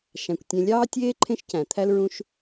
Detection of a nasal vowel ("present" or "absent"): present